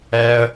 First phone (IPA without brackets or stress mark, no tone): ɛ